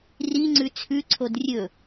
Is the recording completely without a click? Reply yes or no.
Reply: no